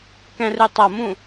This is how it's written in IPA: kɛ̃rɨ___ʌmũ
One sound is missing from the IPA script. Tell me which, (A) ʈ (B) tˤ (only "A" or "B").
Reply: B